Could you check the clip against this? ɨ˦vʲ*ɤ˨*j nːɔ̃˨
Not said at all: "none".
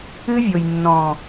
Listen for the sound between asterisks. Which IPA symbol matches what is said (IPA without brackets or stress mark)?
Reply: o˨